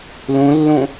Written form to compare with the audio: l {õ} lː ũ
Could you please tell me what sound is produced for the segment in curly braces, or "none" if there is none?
ũ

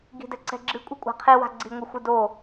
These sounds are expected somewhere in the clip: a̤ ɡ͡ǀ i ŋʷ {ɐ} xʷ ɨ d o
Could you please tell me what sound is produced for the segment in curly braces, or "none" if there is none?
ɐ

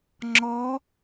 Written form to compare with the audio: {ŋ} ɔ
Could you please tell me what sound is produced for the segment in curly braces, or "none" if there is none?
ŋ͡ǁ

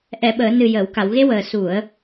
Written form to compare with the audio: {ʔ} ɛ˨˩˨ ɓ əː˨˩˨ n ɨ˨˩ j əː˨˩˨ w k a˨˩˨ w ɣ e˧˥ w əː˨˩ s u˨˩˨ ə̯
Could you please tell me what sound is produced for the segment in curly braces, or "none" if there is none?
ʔ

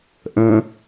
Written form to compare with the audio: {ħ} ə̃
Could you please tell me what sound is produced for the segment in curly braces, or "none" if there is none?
ʔ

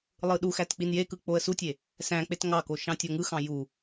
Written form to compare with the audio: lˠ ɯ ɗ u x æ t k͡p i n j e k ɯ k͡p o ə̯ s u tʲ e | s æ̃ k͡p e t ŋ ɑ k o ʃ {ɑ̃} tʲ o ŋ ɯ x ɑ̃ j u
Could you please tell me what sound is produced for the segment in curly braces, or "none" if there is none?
ɑ̃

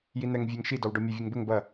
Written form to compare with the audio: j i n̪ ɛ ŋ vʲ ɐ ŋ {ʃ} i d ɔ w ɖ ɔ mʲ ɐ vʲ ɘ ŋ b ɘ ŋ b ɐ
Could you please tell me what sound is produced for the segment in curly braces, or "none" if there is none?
ʃ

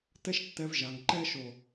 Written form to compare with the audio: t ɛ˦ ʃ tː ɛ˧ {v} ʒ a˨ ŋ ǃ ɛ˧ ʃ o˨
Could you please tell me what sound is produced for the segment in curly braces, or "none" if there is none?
v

